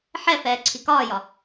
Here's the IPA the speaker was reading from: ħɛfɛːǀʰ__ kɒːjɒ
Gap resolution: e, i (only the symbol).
i